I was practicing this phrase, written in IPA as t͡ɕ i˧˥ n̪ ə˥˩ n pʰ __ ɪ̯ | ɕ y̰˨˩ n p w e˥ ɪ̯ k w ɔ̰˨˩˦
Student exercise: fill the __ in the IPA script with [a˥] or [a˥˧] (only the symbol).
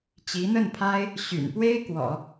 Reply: a˥